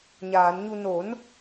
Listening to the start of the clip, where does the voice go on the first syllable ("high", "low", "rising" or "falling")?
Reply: low